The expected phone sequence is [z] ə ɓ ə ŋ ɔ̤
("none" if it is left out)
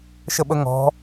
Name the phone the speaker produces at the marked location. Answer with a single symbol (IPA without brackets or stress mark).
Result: ʃ